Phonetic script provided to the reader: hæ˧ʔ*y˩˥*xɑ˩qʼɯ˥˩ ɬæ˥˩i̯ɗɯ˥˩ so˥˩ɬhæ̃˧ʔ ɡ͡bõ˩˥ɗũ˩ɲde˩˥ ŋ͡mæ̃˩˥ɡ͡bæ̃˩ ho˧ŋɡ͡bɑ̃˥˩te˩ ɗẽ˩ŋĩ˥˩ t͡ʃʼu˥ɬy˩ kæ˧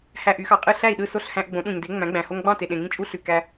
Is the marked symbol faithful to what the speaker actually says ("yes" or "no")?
yes